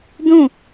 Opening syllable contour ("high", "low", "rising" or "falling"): falling